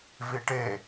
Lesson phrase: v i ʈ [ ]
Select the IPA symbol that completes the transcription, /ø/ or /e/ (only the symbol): e